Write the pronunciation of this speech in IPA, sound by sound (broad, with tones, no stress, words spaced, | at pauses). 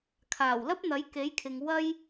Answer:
kʰaː˨˩wlɐ˥p̚ n̪ɐ˨˥jke˨˥jkʰɪ˨ŋ wɐ˥j